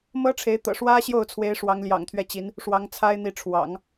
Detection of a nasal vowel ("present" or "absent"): absent